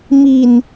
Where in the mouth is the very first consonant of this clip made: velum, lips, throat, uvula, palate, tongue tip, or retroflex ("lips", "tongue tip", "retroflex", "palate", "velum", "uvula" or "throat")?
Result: lips